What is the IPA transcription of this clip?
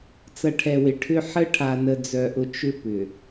t͡s ɐ˨ ʈʰ ɛ˨ w ɪ˨ ʈʰ ʏ˦ ħ ə˦ ʈʰ a˨ n ə˨ d͡z œ˨ ʔ ʊ˨ t͡ʃ ʏ˦ p ʏ˨

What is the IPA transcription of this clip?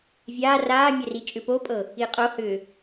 vʲ aː r aː mʲ ɛ r i t͡ʃʼ ʏ p o pʼ ɤ | i qʼ o h ʏː

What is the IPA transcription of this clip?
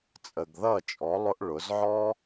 t͡sʼ ə˨ ɡ ð ʌ˦˨ t͡ʃʼ ɔ˨˦ lˠ ʊ˦ ʔ ɭ ʊ˨˦ z ʕ ɔ˦

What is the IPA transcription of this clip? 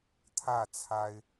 t̪ʰ ä˥˨ t͡sʰ a˦ ɪ̯

